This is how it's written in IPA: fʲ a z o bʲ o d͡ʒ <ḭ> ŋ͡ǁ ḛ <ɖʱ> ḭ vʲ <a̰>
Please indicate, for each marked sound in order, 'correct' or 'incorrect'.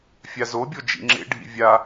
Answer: correct, correct, incorrect

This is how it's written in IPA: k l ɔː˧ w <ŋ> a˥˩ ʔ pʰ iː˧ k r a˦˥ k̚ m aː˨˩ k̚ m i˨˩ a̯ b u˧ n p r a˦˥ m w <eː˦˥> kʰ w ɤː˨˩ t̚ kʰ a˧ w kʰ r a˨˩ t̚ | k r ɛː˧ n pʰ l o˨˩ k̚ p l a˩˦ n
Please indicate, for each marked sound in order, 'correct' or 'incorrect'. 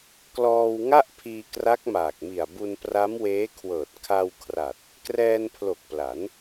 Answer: correct, correct

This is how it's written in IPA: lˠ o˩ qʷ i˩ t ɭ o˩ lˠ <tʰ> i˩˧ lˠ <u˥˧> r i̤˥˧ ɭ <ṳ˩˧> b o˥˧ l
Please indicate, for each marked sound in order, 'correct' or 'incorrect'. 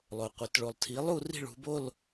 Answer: correct, correct, correct

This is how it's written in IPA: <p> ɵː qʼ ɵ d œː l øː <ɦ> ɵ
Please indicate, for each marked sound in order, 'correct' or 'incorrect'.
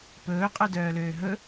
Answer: correct, correct

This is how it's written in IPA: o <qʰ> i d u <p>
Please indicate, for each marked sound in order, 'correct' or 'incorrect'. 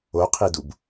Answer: correct, incorrect

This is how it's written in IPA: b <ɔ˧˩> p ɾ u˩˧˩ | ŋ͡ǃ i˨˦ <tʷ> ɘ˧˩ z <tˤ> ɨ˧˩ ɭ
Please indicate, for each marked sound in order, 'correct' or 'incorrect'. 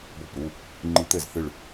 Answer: correct, incorrect, incorrect

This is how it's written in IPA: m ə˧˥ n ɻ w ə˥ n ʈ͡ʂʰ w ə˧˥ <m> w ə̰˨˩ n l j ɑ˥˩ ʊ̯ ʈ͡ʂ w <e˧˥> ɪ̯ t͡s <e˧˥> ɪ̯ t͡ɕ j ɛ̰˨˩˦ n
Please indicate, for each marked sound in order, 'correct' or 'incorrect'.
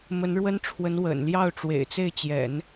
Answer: incorrect, incorrect, incorrect

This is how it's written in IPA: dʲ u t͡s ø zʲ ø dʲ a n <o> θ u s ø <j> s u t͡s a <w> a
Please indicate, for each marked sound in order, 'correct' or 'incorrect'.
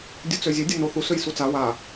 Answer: correct, correct, correct

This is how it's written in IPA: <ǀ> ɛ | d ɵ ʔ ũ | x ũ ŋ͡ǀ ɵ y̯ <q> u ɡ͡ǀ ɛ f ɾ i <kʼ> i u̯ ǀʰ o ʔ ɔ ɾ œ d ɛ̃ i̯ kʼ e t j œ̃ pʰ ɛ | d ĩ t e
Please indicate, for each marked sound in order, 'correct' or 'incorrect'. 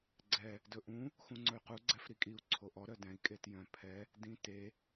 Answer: incorrect, correct, correct

